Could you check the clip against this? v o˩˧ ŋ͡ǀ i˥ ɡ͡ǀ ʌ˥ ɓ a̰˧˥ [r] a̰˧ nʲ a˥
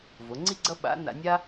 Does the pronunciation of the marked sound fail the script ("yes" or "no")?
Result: yes